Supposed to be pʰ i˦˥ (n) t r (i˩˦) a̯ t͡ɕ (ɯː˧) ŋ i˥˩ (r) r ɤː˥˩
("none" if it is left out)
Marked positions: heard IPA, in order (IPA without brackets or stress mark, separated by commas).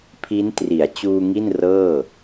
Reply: n, i˩˦, uː˧, n